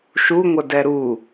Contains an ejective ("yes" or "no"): no